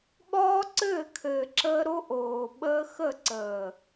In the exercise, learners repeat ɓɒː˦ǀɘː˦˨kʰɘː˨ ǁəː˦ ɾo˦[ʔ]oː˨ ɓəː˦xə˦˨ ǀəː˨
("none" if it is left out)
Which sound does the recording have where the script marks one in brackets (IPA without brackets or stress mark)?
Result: ʔ